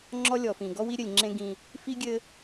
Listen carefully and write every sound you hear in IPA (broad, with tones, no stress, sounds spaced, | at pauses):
ŋ͡ǁ ɔ˦ lʲ ɔ˨ f ĩ˨ ɡ ɔ˦ w i˦ ɾʲ ɘ˨ lʲ ŋ͡ǁ ẽ˦ ɡ ĩ˦ | f i˦ ɡʲ ɘ˦